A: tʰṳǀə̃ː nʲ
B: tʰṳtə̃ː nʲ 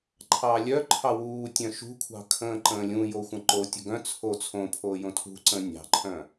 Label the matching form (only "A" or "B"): A